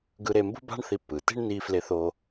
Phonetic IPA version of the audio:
ɡ ɯ˧ ɾ e˧ m b ṳ˥ b a̤˥ ɳ θ i˧ pː ɯ˩ t i̤˥ ɳ n i˧ f l e˧ θ oː˧

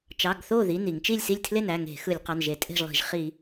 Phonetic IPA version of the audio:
t͡ʃ ɑ˩˧˩ ɡ θ o˥˩ ð i˩˧˩ n i˧˩˧ ŋ t͡ʃ i˥˩ lʲ s i˥˩ lʲ tʰ l e˥˩ n æ˩˧˩ ŋ e̤˧˩˧ x ɯ˧˩˧ lʲ q ɑ˩˧˩ n ʒ e˧˩˧ tʼ e̤˥˩ ʒ lˠ i̤˧˩˧ ʒ χ i˧˩˧

